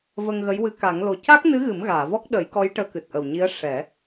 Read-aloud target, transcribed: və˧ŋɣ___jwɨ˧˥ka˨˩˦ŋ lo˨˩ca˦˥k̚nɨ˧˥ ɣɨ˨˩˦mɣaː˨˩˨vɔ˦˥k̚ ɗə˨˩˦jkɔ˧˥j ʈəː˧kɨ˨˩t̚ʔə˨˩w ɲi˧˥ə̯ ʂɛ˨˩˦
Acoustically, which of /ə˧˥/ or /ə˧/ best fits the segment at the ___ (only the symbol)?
ə˧˥